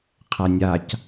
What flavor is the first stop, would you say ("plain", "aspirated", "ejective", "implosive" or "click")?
aspirated